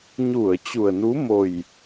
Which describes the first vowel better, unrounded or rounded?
rounded